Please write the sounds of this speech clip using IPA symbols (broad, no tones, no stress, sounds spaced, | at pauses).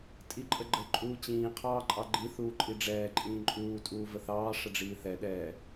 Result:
tʼ i ǃʼ ə ɡ͡ǃ ə ǃʼ uː t͡ɕ ĩː qʰ ɑː ǃʼ ɑ ɡ͡ǃ i θ uː ǃʼ i ɖ͡ʐ ɛː ǃʼ ĩː ǃʼ uː tʼ uː v ə θ ɑː ʂ ə ɖ͡ʐ iː θ ɛ ɗ ɛː